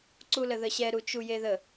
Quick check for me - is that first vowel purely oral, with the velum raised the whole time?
yes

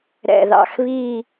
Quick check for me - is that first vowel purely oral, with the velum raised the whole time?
yes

